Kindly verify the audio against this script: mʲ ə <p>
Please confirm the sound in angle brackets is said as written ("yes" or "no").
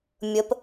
yes